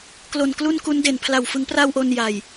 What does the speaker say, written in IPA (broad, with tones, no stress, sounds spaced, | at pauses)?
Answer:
k l o˨˩ n k l u˥˩ n k u˦˥ n d e˨˩ n pʰ l a˨˩ w f ɯ˩˦ ŋ p r a˧ w ʔ o˧ n j a˨˩ j